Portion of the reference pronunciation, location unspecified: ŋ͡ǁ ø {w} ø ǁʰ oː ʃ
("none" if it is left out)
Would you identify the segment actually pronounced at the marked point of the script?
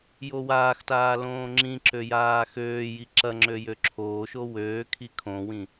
j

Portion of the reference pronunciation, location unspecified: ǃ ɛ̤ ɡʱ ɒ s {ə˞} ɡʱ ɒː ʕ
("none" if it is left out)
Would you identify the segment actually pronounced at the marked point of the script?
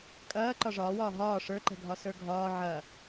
ə˞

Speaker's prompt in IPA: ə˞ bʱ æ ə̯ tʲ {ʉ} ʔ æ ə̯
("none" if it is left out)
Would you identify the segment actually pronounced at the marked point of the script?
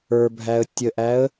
ə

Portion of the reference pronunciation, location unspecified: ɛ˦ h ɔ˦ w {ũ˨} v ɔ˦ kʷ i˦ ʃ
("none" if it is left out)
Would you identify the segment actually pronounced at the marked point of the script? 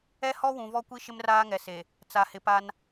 ũ˨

